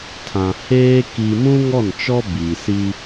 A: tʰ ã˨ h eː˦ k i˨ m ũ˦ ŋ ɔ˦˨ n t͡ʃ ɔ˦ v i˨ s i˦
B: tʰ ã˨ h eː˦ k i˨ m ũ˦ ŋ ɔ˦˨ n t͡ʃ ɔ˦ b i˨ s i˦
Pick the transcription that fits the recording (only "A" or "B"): B